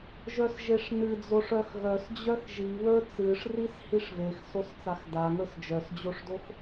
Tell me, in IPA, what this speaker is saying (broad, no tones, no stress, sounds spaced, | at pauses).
ʒ œ s ʒ e ʂ n ɨ d͡z o ʂ œ x ɣ œ s d͡ʑ œ x ʒ i β ə˞ t͡s ɨ ʂ r i s h i ʂ v e x s o s t͡s a x d a ŋ ə˞ s d͡ʒ œ s d͡ʑ o ʂ d o x